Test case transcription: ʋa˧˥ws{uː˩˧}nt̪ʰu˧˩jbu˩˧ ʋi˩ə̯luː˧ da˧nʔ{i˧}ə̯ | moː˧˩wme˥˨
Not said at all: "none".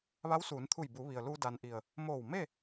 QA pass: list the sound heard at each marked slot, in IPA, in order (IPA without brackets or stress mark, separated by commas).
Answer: uː˩˧, i˧˩